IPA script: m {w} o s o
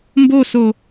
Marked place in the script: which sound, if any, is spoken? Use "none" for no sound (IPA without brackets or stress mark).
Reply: b